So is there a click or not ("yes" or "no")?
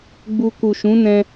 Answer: no